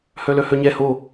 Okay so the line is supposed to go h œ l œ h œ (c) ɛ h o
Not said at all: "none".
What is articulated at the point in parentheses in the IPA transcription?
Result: ɲ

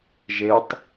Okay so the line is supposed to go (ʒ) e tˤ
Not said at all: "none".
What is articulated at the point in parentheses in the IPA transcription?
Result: ʒ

